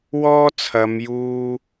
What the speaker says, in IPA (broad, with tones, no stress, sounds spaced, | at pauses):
w ɔː˥ t͡sʰ ɐ˨˧ m j uː˧